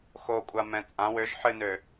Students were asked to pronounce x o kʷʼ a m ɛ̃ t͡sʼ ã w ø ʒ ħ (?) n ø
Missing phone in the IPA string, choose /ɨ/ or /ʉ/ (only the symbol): ɨ